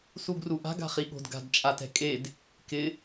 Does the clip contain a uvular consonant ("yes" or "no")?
yes